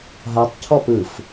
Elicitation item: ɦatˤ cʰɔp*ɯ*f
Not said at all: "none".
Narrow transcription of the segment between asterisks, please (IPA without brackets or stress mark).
ɯ